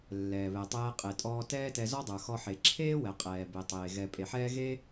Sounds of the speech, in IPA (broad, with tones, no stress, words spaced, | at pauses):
lːɛː˩βɛ˩tˤɛː˧ qʼe˩tʼɔː˧ tɛː˥tɛ˧ zɔ˥dˤə˞˩xɔ˧ħe˩ ǁʰeː˥wɛ˩ qʼɛː˩be˩tˤeː˩ ɣɛ˩ pʼe˩ħɛː˥ ɣe˥